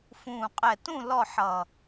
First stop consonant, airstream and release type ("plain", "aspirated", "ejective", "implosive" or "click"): ejective